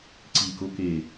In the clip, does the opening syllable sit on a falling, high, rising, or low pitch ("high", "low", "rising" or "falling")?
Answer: low